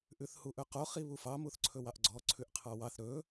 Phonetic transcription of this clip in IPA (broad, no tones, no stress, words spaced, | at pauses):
ʔʉθhuʔɵqo χiβufɑ muθǀʰɵwɑʔɡ͡ǀɔ ǀʰʉʔqʰɑwɑθ ɾɵ